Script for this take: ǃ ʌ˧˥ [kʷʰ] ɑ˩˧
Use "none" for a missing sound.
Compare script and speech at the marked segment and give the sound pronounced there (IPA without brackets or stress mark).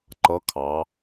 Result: kʰ